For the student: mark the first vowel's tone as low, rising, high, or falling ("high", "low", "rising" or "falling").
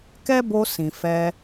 high